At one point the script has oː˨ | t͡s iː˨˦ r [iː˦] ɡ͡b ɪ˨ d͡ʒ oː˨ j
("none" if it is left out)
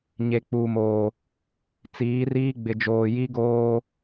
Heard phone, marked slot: iː˦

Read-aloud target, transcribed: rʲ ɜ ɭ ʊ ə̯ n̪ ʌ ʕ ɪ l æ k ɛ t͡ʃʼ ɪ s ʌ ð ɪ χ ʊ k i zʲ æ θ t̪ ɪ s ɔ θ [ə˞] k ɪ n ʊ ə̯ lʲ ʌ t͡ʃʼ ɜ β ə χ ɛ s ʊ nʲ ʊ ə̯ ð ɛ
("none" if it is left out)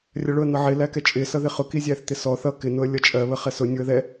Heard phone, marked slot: ʌ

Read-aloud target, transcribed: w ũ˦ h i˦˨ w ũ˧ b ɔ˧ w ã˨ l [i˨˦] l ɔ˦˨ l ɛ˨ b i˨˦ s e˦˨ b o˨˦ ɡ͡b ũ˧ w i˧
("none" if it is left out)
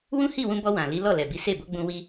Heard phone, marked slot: i˨˦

